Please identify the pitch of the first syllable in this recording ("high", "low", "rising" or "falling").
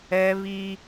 high